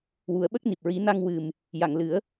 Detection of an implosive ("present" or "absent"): present